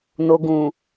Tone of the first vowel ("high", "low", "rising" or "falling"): low